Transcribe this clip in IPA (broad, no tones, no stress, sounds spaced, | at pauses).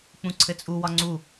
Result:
k͡p ũ ǀʰ ɘ t͡sʼ u w ɒ ŋ͡ǀ u